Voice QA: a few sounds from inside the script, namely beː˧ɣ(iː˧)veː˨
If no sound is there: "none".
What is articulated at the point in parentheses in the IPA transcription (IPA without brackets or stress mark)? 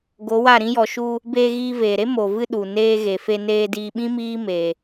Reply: iː˧